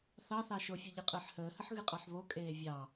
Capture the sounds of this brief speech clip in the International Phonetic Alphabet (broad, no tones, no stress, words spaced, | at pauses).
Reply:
θɑθɑ ʃofʲɨʎeqʼəːħ həːhəħɣɨqʼɑħ βokʼeː vʲɑ